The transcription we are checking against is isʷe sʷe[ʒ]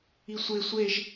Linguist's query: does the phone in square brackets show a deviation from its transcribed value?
no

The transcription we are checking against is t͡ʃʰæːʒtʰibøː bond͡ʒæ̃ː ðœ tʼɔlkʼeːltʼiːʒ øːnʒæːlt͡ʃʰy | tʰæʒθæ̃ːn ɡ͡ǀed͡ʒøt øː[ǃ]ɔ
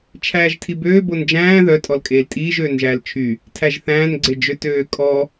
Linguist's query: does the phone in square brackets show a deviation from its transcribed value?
yes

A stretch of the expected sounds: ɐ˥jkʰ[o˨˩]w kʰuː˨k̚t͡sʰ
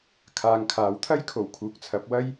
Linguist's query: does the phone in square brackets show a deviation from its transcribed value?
no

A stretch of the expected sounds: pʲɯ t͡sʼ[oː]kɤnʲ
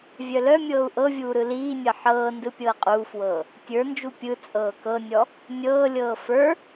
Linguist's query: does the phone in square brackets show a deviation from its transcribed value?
yes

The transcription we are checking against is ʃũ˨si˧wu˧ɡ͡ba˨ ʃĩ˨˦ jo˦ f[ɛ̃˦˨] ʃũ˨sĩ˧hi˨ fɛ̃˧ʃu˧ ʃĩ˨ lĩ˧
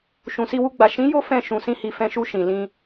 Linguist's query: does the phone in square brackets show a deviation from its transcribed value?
no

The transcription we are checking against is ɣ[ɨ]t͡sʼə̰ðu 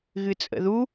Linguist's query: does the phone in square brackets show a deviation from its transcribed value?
no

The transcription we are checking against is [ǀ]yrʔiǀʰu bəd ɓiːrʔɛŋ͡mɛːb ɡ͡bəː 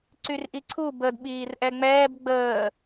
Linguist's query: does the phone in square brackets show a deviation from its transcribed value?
no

